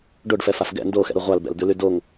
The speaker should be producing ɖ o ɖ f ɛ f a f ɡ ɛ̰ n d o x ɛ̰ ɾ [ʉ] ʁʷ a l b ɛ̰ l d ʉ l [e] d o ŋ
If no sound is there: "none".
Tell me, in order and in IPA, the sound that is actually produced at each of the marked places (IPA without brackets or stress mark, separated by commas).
u, y